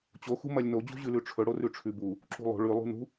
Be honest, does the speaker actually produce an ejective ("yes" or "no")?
no